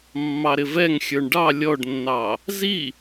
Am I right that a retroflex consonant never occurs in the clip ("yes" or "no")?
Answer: no